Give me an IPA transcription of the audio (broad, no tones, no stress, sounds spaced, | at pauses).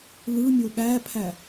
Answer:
l ɯ mʲ o ɠ æ pʰ æ